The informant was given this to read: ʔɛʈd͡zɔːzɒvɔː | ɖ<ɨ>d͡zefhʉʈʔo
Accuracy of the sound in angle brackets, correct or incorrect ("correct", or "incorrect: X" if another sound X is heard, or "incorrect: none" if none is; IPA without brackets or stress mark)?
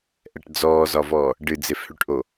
correct